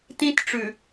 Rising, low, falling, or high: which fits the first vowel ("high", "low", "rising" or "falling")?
high